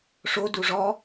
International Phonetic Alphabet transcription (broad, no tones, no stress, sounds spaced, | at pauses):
ʂ o d u ʐ ɔ